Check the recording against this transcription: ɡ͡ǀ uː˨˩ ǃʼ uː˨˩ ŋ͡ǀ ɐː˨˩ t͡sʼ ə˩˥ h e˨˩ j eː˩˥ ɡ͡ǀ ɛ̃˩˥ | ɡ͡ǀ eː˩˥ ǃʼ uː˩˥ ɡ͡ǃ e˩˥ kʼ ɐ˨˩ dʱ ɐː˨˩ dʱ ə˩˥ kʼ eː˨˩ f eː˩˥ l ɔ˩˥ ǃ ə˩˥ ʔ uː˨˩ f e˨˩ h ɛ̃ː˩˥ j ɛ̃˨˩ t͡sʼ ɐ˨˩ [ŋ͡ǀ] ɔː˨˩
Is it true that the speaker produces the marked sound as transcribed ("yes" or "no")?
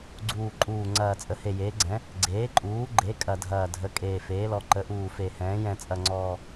yes